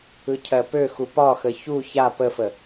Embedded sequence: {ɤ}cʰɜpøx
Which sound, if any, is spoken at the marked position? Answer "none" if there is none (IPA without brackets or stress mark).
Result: ɯ